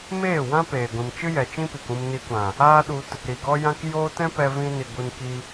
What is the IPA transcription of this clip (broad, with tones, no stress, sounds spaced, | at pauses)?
m eː˦˨ w ã˦ p eː˨ ɡʷ ĩ˨ m t͡ʃ ɨ˦ j ɛ˨ t͡ʃ ĩ˦ p i˨ k ũ˧ m n i˧ kʷ ã˨ | aː˦ ɗ u˧ t | ɾ i˨ ɡ ɔ˦ j ã˦ k j o˦ t ɛ̃˦ p ɛ˧ v ĩ˧ n i˨ ɡʷ ɨ˧ n k i˧